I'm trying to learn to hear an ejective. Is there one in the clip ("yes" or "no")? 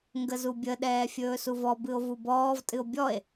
yes